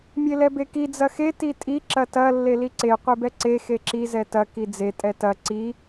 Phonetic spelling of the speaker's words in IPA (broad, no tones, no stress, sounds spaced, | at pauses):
mʲ e l ɛ b e k i d͡z ɐ x e t i tʼ i ǁ ɐ t ɐ lː e l i ǀ e qʷ e b ɛ ǀ e x e ǁ i z ɛ t ɐ k i d͡z e tʼ ɛ t ɐ ǀ i